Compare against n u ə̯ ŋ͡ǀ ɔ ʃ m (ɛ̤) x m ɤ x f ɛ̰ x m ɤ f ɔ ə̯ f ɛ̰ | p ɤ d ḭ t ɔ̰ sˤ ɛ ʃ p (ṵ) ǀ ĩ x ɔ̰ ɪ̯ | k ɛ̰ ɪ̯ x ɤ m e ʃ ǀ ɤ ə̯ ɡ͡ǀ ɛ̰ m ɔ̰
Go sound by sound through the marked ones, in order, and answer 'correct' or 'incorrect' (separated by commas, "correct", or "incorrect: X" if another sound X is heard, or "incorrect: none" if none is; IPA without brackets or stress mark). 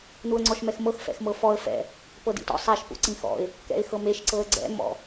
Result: incorrect: ɛ, correct